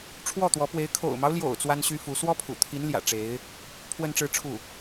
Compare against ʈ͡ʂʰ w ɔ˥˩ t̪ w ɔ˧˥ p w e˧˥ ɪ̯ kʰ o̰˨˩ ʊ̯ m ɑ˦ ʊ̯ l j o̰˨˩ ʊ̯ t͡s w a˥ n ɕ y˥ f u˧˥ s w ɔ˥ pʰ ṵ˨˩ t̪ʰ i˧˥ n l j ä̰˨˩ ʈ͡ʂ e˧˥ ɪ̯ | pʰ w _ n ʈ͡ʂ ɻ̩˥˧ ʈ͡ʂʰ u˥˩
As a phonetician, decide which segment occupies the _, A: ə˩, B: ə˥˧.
B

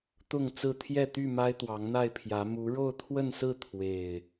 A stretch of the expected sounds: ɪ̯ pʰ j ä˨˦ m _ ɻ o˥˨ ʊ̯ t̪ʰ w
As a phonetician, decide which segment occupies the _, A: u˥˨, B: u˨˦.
B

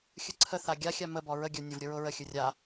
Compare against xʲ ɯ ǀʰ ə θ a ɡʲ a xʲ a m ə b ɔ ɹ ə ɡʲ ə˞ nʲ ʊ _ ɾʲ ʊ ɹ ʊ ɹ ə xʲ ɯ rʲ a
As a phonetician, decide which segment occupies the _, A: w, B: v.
B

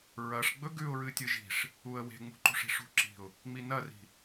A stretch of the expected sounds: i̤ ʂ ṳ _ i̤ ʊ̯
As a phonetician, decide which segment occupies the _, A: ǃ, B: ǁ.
B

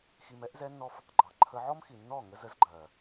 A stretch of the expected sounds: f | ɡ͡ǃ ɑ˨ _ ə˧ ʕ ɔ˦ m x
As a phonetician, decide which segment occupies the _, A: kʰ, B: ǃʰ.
B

